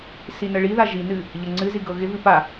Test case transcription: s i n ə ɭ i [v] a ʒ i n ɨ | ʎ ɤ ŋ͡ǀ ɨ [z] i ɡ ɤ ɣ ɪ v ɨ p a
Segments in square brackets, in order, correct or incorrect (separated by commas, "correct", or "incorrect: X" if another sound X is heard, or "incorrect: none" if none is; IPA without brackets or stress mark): incorrect: ð, correct